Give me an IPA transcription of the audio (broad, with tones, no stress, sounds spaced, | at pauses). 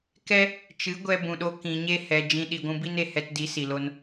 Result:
k ɛ˦ | t͡ʃ ɨ˨˦ ɡʷ ɛ˧ b ũ˨ ɗ o˧ k ĩ˨ ɲ e˦ h ɛ˨ d͡ʒ ĩ˧ ɗ i˨ ɡʷ ũ˧ b i˦ n e˨ h ɛ˧ t d i˨˦ s i˨ l o˧ n